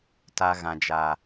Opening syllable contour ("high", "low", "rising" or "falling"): low